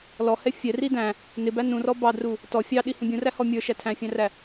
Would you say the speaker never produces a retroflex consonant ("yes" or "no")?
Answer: yes